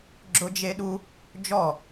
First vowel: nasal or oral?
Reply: oral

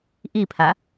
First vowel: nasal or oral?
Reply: oral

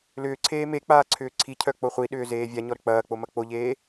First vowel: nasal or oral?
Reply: oral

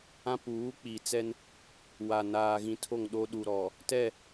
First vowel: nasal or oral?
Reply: nasal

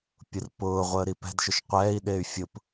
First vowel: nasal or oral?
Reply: oral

